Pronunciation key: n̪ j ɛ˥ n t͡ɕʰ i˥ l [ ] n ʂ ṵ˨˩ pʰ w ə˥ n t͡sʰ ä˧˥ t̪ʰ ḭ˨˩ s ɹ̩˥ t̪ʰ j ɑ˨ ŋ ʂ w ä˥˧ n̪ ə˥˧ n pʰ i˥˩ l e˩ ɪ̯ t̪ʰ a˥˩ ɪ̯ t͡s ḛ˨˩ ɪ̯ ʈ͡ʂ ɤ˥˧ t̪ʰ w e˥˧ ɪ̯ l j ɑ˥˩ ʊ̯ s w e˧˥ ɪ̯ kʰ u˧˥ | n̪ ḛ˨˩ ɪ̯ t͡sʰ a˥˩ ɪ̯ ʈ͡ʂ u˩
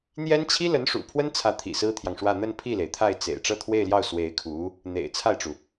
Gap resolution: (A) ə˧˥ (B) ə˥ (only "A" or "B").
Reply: A